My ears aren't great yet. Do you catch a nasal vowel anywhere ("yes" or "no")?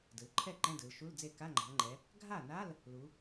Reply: yes